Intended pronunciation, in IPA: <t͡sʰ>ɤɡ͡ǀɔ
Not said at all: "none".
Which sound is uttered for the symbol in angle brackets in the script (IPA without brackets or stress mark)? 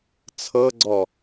t͡sʰ